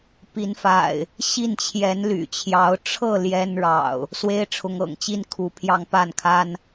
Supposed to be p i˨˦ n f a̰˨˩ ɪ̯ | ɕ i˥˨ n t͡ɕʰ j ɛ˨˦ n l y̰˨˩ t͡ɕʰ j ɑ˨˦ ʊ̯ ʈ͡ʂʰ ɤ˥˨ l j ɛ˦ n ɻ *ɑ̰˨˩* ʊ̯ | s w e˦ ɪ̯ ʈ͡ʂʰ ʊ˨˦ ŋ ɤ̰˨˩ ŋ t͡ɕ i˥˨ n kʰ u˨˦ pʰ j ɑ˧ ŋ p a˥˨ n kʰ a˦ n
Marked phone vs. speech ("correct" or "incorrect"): correct